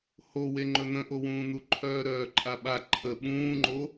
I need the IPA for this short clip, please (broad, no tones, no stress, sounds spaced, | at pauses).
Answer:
h o w e ŋ͡ǃ ɵ n̪ ə̃ ʔ o w ũː n̪ u ǃʰ œː ɾ œː ǃʼ a ɓ a ǃʰ ə ɓ ũː ŋ͡ǃ o